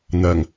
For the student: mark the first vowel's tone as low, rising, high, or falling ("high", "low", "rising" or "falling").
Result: low